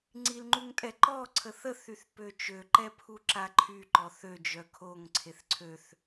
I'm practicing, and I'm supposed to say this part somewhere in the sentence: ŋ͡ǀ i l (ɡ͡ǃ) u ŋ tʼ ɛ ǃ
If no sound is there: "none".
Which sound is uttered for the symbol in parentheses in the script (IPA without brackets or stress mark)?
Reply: ŋ͡ǃ